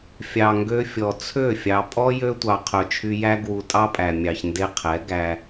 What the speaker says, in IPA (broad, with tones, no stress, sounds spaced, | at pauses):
fʲ ɑ˨ ŋ ɡ ø˧ fʲ ɔ˨ t͡sʰ ø˦˨ fʲ ɑ˨ pʼ ɔ˦ j ø˧ tʷ ɑ˨ qʰ œ˨ t͡ʃʰ y˧ j æ˦ ɡ w u˧ tʼ ɑ˦ pʼ æ˨ mʲ ɑ˨ ç n d e˧ qʰ ɛ˨˦ ɡ æ˧